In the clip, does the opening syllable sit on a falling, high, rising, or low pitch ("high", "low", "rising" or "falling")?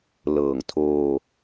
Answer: low